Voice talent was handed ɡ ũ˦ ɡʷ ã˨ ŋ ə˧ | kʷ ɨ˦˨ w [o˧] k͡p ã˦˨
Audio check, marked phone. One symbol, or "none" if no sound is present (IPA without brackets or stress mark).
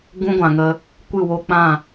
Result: o˧